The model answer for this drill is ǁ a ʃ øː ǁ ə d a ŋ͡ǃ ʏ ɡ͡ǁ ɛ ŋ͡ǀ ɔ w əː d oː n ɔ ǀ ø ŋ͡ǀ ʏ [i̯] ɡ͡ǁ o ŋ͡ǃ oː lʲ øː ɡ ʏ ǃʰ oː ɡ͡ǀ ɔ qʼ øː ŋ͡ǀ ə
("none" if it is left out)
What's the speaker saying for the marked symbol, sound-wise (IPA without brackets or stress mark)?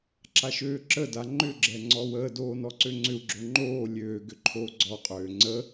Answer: u̯